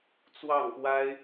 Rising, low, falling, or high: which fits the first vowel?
falling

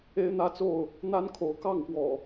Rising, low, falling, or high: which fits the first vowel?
high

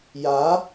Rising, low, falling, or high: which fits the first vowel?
rising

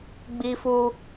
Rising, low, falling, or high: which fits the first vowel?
high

